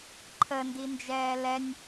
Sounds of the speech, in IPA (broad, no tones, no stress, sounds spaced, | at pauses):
ǃʰ ə n d i n d͡ʒ ɛː l ɛ nʲ